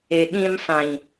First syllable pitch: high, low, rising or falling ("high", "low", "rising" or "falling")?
low